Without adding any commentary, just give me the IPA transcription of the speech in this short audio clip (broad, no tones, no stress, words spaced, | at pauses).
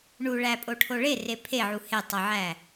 ɳuɭæpʼoʈʰo ɭere pʰeʕu hetˤoʕæ